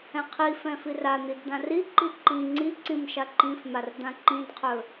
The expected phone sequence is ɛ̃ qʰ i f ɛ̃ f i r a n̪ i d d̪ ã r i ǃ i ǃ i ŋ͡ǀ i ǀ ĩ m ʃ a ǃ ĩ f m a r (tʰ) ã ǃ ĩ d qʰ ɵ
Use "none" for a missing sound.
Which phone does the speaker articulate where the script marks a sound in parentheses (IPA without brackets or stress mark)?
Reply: d̪